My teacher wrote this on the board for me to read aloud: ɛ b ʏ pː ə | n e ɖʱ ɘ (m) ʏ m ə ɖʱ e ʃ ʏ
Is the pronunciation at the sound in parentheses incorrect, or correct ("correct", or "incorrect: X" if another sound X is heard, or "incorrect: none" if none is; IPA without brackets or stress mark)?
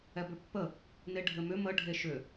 correct